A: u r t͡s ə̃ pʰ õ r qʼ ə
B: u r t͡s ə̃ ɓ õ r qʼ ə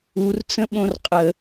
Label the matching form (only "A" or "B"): B